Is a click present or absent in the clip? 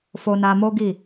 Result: absent